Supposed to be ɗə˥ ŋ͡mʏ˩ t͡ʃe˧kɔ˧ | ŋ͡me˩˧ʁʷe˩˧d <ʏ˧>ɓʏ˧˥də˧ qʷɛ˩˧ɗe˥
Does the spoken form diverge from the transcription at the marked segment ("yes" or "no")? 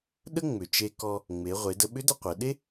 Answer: yes